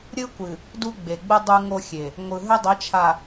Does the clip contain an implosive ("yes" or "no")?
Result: no